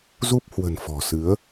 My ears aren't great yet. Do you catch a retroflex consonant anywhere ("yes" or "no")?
no